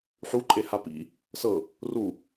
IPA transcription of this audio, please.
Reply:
ħ u ǃʼ e h a p ḭ | s ɤ | r u

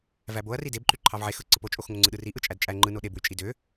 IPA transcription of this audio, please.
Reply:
v æ b o ɐ̯ r i d e b ǃ y ǃʰ ɑ v ʕ e x ɯ ǀ ɯ p o t͡ʃʼ o x ŋ o ŋ͡ǀ ɯ ɗ ɯ r i ʔ ɯ t͡ʃʼ æ d t͡ʃʼ æ ŋ͡ǃ ɯ n o ɗ e b w y t͡ʃʼ i d ø

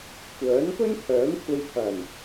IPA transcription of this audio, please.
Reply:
kʷ œː˨˥ n p ɵ˥ n t̪ʰ œː˨˥ m kʷʰ ɐ˧ j pʰ ɐ˨˩ n

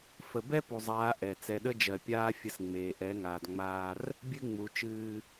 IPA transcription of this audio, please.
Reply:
f ə˨ b ɛ˦ p u˨ zˤ aː˨˦ ʔ ɛ˨ t͡s ɛ˨ ɗ ə˦ d͡ʒ ɜ˨ pʲ aː˦ fʲ ə˦ s ŋ͡m eː˨ ʔ ɛ˨˦ ŋ aː˨ d ŋ͡m aː˦ r | bʲ ɨ˦ ŋ͡m u˨ t͡ʃ ɨː˦

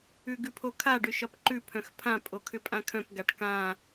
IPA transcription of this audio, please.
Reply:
ʉ ɡ ʉ pʰ o kʰ a ɖ ʏ ʃ ɒ p ǃ ʉ pʰ œ̃ x pʰ ã pʼ o kʰ ʏ pʼ ã kʰ œ̃ p ɡ a ʈ k ã

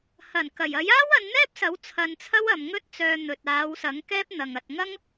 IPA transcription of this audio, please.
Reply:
h ɐ˨˩ n k ɐ˨˩ j ɐ˨˥ j aː˥ w ɐ˨˧ n n̪ ɛː˥ p̚ s ɐ˨˥ w t͡sʰ ɐ˧ n t͡sʰ ɐ˥ w ɐ˨ m ŋ ɵ˥ t̚ t͡s œː˧ n̪ ɵ˨ t̚ aː˨˧ w s ɐ˨˥ ŋ k ɛː˥ p̚ n̪ ɐ˨ ŋ ɐ˨ t̚ ŋ ɐ˥ ŋ

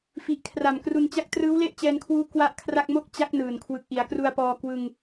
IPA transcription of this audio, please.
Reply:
f i˨˩ ʔ kʰ r a˨˩ m k r u˧ n t͡ɕ a˦˥ k̚ t r ɯː˦˥ w l e˥˩ ʔ t͡ɕ ɛː˧ n kʰ w uː˦˥ k w a˥˩ ʔ kʰ r a˥˩ k̚ m o˥˩ k̚ t͡ɕ a˦˥ k̚ n ɯː˨˩ n kʰ w ɯ˨˩ k̚ ʔ i˩˦ a̯ k r u˧ a̯ p ɔː˧ k w ɯ˧ ŋ

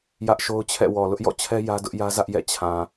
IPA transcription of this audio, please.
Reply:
j ä˦ ʔ ʃ o˦ ʊ̯ t͡ɕʰ ɛ̰˦˨ w ɔ˨ l ʊ˦ ʔ j ɔ̰˦˨ t͡ɕʰ ɛ˦ j ä˦ d ʊ˦ ʔ j ä˦ z ä˦ ʔ j ɛ̰˦˨ t͡ɕʰ ã˨

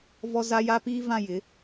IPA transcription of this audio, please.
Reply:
v ɔ˦ z a˦ j a˦ p iː˦ v ã˦˨ j ɪ˨˦

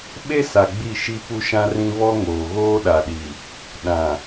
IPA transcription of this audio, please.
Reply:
ɓ e˦ s a˨ ɡ͡b i˦˨ ʃ i˦ p u˦ ʃ ã˦ r ĩ˦ β ɔ˦ ŋ oː˨ ɣ oː˦ ɗ a˨ ɗ i˨ | ɗ ã˨

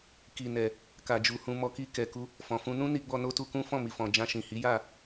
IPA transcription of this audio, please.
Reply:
k i˨ n ɛ˨ | k a˨ d͡ʒ u˨ h ũ˧ m ɔ˧ k i˧ k ɛ˨ k u˧ | f ɔ̃˨ f ũ˧ n ũ˦ n i˧ ɡ͡b ɔ˧ n o˦ t u˧ k ũ˦ f ɔ̃˦˨ m i˨ f ɔ̃˨ d͡ʒ ã˧ ʃ ĩ˨ h i˨˦ j a˦˨

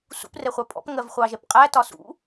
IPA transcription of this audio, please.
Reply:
s ṵ p r ɛ χʷ ɑ pʼ ɔ̰ p ŋ ɜ v χʷ ɑ ʒ ɛ p qʼ æ t ɒ s ṵ

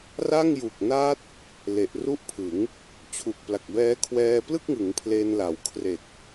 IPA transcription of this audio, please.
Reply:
r a˥˩ ŋ j u˨˩ k̚ n a˦˥ t̚ | l e˨˩ ʔ r u˥˩ ʔ pʰ ɯ˩˦ ŋ | t͡ɕʰ u˨˩ k̚ p l a˨˩ k̚ b ɛː˦˥ kʰ w ɛː˧ p l ɯ˥˩ k̚ ŋ ɯ˩˦ ŋ pʰ l e˧ n l a˩˦ w kʰ r e˨˩ k̚

